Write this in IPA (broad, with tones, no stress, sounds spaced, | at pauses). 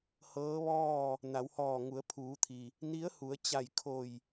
h ɤː˧˥ ʋ ɔː˥˨ | n a˩˧ w h ɔː˧˩ ŋ u˩˧ ə̯ pʰ uː˩˧ t̪ʰ i˩ | n i˧˥ ə̯ h u˩˧ ə̯ t͡ɕ a˧˩ j kʰ o˧˩ j